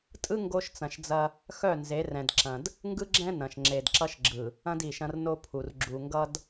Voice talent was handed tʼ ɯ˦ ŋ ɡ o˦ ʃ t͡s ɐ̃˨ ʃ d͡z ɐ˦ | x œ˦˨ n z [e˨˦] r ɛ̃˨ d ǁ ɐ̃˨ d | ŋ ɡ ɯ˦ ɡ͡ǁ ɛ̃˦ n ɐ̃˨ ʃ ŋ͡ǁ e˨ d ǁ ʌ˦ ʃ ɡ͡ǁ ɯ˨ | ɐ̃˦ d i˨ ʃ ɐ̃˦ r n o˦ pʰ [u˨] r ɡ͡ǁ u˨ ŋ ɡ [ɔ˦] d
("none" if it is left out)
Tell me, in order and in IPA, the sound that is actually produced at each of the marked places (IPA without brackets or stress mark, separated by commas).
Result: e˨˦, u˨, ʌ˦